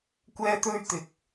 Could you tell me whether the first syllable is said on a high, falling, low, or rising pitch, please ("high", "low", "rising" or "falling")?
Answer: high